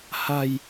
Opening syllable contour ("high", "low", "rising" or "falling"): low